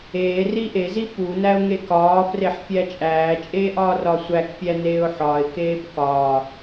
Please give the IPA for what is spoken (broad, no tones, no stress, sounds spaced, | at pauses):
eː r i ʔ e z i p u n æ ʊ̯ ŋ e k ɒː f r e ħ fʲ æ t͡ʃʼ æː t͡ʃʼ eː ʔ ɒː r ɒ sʷ æ k pʲ æ n eː ʊ̯ ħ ɒ ɪ̯ k eː b k ɒː